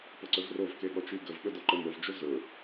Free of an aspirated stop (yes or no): yes